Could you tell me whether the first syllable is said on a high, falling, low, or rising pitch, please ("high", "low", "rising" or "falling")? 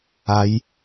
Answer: rising